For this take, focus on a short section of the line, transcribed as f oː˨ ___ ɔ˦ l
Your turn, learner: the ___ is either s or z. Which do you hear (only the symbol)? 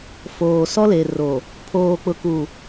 s